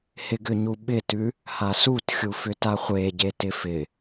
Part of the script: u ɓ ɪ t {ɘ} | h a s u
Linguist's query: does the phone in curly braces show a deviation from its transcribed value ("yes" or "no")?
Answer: yes